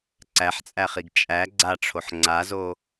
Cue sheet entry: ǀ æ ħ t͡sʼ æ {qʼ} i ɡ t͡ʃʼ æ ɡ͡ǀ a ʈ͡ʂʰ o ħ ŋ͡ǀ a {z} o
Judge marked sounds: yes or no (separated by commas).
no, yes